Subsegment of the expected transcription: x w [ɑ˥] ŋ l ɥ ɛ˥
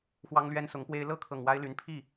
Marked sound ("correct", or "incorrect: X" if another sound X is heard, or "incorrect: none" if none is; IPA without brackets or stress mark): correct